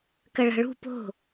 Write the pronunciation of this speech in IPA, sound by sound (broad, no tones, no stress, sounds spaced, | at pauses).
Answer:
k ɐ ɭ a̤ ɭ ṳ p o̤